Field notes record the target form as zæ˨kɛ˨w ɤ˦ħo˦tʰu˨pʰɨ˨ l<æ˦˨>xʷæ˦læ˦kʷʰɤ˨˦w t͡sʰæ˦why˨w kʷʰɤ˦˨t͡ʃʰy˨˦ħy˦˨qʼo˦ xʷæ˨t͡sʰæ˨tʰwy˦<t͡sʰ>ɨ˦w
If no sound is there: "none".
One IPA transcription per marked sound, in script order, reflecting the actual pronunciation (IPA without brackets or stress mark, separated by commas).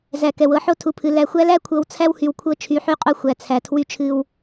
æ˨, t͡ʃʰ